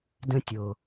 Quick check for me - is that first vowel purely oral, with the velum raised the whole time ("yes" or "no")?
no